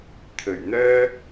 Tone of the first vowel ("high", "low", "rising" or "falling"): low